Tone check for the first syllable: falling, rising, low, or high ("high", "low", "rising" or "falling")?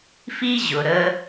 high